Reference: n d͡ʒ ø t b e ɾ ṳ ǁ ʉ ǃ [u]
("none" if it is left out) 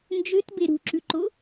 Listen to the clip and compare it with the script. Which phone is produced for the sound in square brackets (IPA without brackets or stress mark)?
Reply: o